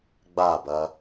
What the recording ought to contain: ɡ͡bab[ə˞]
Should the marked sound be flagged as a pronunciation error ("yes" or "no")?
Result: yes